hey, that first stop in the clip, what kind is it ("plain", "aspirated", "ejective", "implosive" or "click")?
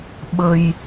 implosive